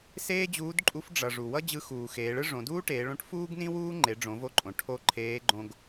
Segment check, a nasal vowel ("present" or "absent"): present